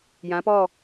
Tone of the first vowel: rising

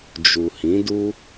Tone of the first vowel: low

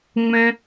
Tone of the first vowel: high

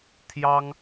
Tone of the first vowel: high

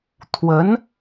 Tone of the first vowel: rising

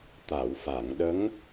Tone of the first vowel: low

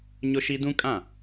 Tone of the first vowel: high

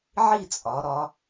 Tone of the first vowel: falling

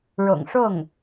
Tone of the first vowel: low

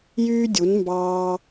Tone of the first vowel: high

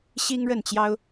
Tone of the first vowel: high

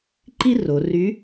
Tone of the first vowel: high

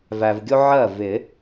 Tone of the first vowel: low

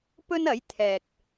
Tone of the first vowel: high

